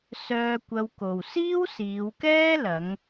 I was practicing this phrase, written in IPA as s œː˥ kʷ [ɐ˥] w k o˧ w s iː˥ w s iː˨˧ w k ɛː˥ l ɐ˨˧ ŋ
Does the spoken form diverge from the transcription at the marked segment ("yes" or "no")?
no